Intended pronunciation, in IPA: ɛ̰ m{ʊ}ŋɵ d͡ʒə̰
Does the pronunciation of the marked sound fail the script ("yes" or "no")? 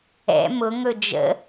no